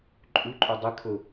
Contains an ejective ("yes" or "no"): yes